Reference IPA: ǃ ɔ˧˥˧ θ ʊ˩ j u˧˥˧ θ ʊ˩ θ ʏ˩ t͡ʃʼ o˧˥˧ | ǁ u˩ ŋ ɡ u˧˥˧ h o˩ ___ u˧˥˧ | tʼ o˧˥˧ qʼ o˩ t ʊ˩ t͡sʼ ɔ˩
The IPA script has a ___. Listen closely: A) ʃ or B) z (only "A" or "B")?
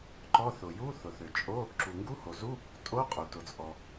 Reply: B